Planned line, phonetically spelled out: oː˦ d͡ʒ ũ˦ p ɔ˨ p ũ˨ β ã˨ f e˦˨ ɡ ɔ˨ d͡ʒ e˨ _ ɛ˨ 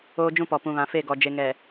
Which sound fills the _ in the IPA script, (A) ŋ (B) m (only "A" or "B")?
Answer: A